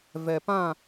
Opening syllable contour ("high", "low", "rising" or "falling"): low